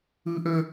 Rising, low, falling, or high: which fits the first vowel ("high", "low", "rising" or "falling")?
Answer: high